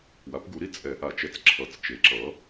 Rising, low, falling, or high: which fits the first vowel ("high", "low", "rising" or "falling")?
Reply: rising